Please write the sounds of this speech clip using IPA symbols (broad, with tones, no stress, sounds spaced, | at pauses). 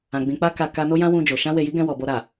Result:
ã˨ ɡ͡b ĩ˨ k͡p a˧ k a˨ k a˧ n o˦ j ã˦ w ũ˧ d͡ʒ o˨ ʃ ã˧ w e˨ j i˨˦ ɡ ɛ̃˧ w ɔ˨ b o˧ ɾ a˨